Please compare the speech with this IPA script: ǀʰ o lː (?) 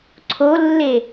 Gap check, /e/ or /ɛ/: e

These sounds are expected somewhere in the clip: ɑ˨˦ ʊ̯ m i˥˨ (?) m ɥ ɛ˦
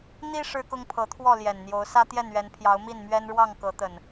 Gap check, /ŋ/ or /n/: n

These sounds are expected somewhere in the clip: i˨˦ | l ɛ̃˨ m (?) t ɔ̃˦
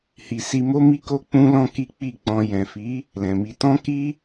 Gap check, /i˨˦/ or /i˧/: i˧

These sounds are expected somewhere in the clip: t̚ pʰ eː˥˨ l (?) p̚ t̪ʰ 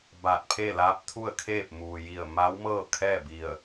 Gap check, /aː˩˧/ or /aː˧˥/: aː˧˥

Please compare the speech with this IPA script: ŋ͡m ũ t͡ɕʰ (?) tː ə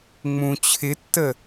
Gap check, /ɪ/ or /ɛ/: ɪ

